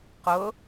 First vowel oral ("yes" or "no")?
yes